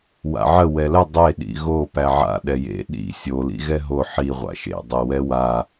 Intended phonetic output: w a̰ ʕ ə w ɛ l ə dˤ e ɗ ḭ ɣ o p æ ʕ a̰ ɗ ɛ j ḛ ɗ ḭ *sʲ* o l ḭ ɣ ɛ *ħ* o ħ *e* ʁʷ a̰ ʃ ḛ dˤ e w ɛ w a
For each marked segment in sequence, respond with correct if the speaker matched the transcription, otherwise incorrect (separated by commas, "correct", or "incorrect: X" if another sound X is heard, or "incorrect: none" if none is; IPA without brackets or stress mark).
correct, incorrect: ɦ, incorrect: i